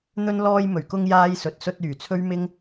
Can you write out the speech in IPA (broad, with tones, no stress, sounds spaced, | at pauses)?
n̪ ɵ˧ n l ɔː˧ j m ɵ˨˩ ɥ k ʊ˧ ŋ j aː˧ j s ɵ˨ t̚ s ɵ˧ t̚ yː˨˩ t͡sʰ ɵ˥ ɥ m ɪ˥ ŋ